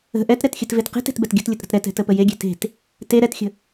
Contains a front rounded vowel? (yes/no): no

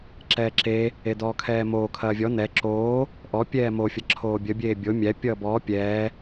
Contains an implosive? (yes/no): no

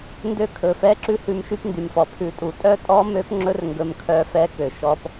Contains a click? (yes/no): yes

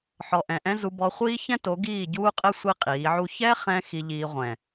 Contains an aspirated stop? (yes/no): no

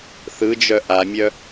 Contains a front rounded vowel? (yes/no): yes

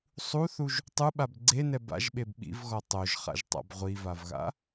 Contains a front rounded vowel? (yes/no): no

